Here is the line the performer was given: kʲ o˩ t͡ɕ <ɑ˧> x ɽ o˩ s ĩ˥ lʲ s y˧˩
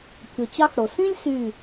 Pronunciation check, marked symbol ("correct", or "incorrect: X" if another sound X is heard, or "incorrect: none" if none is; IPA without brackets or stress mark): correct